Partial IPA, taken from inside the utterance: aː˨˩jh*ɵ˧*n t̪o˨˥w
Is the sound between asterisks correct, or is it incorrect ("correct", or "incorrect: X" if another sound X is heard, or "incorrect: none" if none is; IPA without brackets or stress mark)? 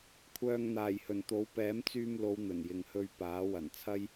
incorrect: ɵ˨˩